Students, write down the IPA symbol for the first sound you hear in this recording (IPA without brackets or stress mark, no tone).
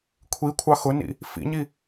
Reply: kʷʰ